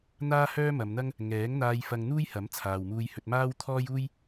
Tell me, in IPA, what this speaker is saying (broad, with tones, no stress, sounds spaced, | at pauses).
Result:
n̪ aː˥ h œː˥ m ɐ˨˧ m n̪ ɐ˥ ŋ | ŋ ɛː˨˥ ŋ n̪ aː˧ j f ɐ˧ ŋ n̪ uː˥ j h ɐ˨˥ m t͡sʰ aː˨ w m uː˧ j h ɵ˧ t̚ m aː˥ w t̪ʰ ɔː˥ j uː˥ j